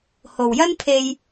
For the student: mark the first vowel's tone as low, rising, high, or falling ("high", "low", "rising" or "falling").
low